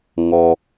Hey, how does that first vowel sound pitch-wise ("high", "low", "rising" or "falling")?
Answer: low